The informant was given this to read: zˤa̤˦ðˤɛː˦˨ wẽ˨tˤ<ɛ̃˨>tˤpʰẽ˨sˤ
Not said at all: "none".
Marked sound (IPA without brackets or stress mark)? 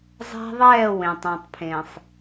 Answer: ɛ̃˨